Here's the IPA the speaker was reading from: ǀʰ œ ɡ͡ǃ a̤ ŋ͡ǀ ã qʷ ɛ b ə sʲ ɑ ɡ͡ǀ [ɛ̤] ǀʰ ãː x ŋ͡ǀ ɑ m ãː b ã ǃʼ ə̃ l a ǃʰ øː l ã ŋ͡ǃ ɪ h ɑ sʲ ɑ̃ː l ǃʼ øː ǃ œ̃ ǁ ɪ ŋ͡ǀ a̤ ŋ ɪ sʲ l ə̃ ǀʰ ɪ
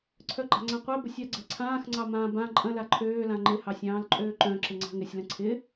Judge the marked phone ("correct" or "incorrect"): correct